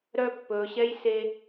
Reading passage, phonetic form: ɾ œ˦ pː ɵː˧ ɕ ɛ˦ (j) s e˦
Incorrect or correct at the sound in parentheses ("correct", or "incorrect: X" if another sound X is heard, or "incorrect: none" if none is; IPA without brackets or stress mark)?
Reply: correct